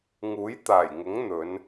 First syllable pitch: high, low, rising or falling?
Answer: rising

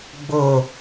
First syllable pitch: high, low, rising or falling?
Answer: low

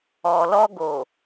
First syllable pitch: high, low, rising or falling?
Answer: low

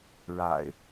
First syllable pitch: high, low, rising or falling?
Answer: low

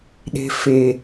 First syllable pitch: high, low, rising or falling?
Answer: low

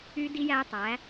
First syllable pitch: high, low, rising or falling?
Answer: high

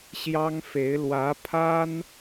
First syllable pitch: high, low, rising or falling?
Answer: high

